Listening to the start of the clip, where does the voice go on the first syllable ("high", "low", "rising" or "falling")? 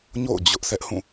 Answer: falling